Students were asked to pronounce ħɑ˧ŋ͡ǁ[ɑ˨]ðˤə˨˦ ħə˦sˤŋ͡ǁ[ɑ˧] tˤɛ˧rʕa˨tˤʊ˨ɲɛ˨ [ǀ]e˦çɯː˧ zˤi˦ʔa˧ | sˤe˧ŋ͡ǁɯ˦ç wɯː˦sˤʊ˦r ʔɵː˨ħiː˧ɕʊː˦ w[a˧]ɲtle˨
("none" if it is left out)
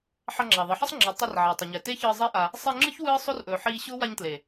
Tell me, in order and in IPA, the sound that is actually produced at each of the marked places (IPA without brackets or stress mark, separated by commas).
ɑ˨, ɑ˨˦, t, a˧